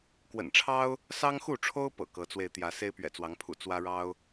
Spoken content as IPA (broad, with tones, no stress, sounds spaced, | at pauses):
k w ə̰˨˩ n ʈ͡ʂʰ ɑ˦ ʊ̯ | s ɑ˦ ŋ x u˥˨ ʈ͡ʂʰ o˦ ʊ̯ p ɤ̰˨˩ k ɤ˨˦ t͡s w e˧ ɪ̯ t̪ j ä˨˦ s e˦ ɪ̯ p ɥ ɛ̰˨˩ t͡s w ɑ˨˦ ŋ pʰ ṵ˨˩ t͡s w ä˦ ɻ ɑ˦ ʊ̯